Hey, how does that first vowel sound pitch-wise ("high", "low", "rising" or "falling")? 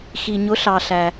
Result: low